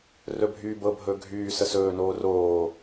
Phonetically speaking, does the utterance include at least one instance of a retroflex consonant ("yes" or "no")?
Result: no